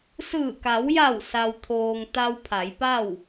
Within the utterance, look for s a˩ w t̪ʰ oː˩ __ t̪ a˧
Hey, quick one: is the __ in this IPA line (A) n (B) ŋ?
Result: B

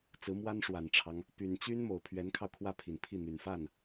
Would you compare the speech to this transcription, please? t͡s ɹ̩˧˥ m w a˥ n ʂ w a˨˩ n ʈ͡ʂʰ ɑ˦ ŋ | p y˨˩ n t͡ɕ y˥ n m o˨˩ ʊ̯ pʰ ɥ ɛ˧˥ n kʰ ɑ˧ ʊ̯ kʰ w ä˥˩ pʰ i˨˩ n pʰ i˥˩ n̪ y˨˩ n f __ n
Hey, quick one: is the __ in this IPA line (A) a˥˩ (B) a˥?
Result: A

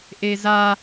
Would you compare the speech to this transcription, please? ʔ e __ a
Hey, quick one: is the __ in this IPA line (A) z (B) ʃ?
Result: A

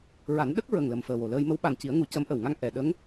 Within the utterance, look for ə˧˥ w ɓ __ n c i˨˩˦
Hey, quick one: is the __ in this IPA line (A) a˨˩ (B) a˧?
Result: A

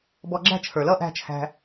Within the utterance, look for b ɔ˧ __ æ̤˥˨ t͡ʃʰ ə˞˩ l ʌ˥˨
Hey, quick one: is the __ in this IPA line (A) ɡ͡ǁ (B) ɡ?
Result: A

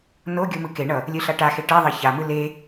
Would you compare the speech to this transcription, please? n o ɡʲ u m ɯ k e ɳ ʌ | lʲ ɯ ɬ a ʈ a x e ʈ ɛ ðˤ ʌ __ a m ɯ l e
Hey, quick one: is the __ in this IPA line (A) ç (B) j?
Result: A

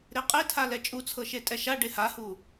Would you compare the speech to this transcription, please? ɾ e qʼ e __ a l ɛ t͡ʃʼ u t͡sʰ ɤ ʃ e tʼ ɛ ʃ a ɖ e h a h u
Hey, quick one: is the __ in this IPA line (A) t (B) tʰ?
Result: B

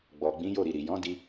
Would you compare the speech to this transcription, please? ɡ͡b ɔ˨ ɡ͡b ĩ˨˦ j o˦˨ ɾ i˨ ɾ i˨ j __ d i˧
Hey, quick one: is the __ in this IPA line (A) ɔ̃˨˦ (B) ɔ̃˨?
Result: A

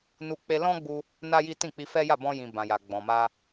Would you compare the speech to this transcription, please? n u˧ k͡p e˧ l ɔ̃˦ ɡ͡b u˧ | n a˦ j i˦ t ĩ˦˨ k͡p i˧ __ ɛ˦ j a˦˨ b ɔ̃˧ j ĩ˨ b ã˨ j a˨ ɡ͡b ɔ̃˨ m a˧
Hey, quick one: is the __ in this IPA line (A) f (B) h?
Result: A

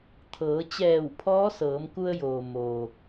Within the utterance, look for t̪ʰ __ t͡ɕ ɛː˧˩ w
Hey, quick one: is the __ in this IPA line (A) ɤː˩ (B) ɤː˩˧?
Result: B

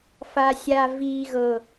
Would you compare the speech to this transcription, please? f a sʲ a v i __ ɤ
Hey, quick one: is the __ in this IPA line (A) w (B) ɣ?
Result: B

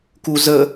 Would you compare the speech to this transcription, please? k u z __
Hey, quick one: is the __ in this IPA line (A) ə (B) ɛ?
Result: A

